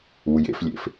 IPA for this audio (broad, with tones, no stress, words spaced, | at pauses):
u˩jḛ˨flʲḛ˩f